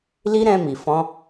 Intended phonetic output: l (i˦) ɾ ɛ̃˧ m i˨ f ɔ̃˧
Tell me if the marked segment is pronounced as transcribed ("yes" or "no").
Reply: yes